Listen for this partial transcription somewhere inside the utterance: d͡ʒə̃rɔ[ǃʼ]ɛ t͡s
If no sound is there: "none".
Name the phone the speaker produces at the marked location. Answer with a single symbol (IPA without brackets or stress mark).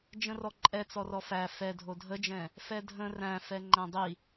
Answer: ǃʼ